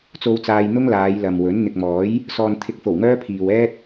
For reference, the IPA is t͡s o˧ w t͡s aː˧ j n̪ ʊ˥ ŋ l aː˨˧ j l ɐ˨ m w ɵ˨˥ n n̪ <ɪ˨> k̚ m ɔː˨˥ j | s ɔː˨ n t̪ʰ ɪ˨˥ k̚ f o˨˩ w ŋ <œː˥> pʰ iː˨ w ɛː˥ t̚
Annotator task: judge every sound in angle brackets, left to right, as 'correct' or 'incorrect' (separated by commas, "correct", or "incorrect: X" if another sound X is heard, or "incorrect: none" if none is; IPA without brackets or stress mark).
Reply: correct, correct